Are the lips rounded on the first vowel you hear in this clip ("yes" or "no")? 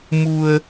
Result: yes